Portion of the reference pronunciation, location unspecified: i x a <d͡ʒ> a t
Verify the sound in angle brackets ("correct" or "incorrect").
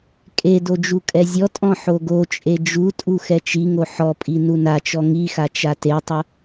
incorrect